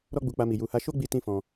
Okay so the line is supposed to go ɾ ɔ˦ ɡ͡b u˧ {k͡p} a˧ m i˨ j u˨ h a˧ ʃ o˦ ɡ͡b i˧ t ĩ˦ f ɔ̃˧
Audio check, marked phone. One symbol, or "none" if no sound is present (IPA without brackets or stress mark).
k͡p